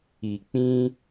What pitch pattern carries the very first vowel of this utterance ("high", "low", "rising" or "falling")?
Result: low